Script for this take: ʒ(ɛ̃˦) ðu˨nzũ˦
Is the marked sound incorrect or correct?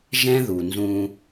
correct